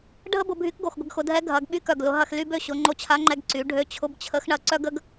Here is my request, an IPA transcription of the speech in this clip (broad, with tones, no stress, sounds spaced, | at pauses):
ɖʱ ə˥ b ʊ˧ bʱ y˧˥ k ɡ o˩ x ɡʷ ə˧ ɡ x ʊ˩˧ dʱ ɛ˧˥ ɡʱ ɐ˩˧ ɡ ɓ y˧˥ k œ˩ ɡ l ʊ˩˧ ɦ ɐ˧ x l y˥ b ø˧ ɕ ʊ˩˧ ŋ͡ǃ o˧˥ t͡ɕʰ a˧˥ ŋ͡ǃ ɛ˧ ɡ ǀ y˩˧ ɖʱ ø˧˥ t͡ɕʰ ʊ˧˥ b t͡ɕʰ ə˧˥ x ɳ ɐ˧ ǀ œ˥ ɡ ə˥ ɡ